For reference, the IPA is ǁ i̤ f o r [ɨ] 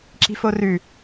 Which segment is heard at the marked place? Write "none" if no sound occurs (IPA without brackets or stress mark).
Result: ʉ